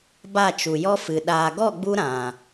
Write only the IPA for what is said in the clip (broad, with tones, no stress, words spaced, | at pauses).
ba˦˨t͡ʃu˨jɔ˦fɨ˨ ɗaː˨ɡɔ˦˨ɡ͡bu˧ ɾã˨